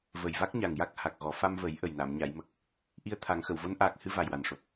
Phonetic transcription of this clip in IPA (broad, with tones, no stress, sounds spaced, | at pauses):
v ə˨˩ j v a˦˥ k̚ ɲ a˨˩ ŋ j a˦˥ k̚ h a˨˩ k̚ ɣ ɔ˨˩˦ f a˧ m v ə˨˩˦ j ʔ ə˨˩ j n a˨˩˨ m ɲ a˨˩˨ j m ə˨˩ k̚ | ʔ i˧ ə̯ t̪ʰ a˨˩˦ ŋ x ə˨˩˨ w v o˧˥ n ʔ aː˨˩ k̚ h ɨ˧ v a˨˩ j w a˨˩ n ʂ o˨˩ p̚